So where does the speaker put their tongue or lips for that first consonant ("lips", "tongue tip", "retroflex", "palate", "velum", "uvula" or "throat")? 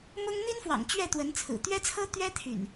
lips